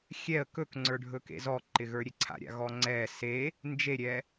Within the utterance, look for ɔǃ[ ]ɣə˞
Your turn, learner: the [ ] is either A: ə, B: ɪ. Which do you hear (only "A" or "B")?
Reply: B